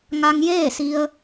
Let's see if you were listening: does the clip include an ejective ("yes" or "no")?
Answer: no